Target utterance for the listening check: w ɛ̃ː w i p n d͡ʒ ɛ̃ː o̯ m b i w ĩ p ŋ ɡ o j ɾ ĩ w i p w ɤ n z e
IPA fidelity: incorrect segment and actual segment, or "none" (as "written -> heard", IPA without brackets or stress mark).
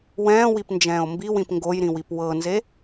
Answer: none